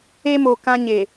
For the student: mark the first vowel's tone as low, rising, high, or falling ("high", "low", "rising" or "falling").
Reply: high